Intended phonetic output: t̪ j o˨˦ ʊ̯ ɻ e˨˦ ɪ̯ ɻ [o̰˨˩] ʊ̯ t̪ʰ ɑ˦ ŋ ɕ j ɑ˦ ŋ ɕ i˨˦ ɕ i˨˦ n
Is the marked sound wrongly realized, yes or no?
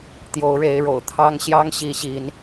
no